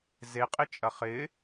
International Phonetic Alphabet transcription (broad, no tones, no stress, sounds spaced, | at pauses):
z e qʼ ɪ t͡ʃʼ ɐ χ ɪ